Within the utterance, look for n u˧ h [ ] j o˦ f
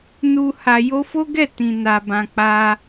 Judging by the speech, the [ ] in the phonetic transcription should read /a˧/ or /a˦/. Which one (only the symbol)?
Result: a˧